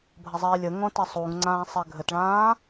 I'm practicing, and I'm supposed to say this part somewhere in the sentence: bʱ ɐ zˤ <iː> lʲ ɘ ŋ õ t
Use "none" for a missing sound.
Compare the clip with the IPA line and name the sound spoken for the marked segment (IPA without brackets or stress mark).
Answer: iː